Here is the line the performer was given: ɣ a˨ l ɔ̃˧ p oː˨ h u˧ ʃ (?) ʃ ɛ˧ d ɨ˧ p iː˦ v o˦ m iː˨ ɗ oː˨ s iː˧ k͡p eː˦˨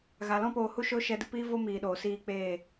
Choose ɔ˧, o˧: o˧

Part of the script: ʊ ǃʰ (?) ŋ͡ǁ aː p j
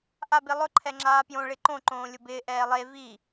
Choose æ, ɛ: ɛ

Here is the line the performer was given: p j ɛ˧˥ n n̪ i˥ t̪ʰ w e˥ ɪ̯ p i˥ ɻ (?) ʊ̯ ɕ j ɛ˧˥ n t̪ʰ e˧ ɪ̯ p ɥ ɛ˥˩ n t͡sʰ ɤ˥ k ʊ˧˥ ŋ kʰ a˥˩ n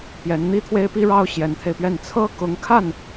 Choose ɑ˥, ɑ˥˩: ɑ˥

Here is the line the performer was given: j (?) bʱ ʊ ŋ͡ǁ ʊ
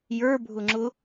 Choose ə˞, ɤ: ə˞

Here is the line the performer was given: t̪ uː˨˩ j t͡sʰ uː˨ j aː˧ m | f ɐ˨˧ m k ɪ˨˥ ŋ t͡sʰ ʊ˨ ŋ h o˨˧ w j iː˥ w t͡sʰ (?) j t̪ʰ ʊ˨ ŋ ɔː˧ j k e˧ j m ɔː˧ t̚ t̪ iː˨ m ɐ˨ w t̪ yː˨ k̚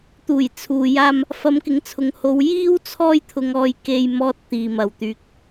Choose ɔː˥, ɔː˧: ɔː˧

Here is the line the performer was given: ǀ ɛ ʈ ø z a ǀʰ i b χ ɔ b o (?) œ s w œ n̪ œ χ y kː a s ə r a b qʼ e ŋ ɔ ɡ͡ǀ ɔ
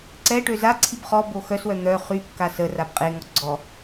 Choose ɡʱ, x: x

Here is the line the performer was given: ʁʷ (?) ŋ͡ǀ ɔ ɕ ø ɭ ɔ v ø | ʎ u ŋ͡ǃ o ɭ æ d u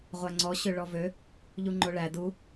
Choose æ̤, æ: æ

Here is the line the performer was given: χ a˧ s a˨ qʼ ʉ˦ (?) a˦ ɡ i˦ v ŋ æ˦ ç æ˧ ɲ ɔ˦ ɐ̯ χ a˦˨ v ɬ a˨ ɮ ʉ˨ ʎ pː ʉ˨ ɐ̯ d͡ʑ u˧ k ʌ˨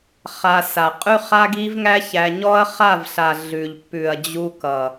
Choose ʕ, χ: χ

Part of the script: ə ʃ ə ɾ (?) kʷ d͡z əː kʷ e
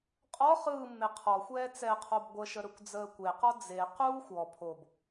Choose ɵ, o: ɵ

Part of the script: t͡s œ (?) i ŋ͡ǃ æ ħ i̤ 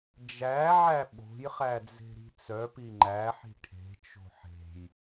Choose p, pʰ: p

